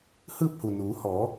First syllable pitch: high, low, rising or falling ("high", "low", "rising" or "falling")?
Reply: falling